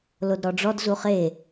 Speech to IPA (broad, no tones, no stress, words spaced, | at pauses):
lodɾɔɖ͡ʐɔd zuχe